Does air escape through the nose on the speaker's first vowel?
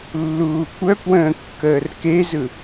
no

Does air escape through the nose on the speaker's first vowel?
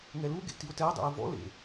no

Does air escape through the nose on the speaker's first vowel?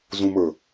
yes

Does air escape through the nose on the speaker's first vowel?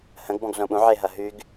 yes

